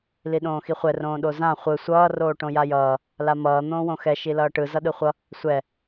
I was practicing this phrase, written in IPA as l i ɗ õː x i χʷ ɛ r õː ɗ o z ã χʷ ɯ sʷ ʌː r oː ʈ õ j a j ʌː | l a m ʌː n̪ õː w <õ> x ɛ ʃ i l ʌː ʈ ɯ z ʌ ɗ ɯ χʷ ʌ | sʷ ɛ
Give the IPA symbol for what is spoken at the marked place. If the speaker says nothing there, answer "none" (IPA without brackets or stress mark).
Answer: õ